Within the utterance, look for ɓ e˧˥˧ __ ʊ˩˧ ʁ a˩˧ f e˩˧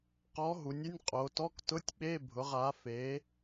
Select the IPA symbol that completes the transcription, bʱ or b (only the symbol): bʱ